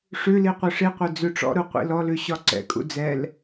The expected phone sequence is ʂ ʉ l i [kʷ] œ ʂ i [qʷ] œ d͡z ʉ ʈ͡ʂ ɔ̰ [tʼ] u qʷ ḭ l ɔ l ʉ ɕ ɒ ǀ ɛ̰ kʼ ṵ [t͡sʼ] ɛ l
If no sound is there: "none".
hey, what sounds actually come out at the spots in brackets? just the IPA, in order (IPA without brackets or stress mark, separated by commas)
qʷ, qʷ, ɾ, d͡z